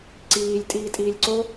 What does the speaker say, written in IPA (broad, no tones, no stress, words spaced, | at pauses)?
ǀiːlʲ tʼiːtʼiːlʲǀo